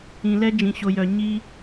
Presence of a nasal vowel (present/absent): present